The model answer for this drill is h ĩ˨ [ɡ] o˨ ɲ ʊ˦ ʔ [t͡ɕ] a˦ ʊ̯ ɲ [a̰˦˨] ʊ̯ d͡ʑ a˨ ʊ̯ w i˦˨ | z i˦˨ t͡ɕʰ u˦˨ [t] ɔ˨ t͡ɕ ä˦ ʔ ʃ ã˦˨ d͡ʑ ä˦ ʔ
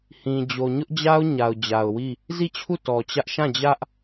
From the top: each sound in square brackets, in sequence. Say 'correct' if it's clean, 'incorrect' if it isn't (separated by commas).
incorrect, incorrect, incorrect, correct